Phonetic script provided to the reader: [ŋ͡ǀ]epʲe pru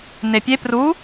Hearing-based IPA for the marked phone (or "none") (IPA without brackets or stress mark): n